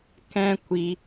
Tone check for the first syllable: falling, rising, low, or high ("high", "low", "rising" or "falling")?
high